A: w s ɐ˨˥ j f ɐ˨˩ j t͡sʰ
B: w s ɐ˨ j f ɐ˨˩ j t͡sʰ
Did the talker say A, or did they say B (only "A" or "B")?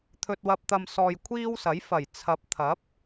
A